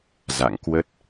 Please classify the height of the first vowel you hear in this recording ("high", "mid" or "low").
low